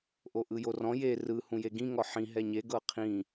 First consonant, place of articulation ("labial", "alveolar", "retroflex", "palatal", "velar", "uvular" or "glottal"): glottal